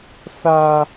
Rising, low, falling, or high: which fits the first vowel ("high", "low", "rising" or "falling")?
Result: high